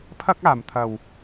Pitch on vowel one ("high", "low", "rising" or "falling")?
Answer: high